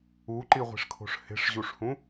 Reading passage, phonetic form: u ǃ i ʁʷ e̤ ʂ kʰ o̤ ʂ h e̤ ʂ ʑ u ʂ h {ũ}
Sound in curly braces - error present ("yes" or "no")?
no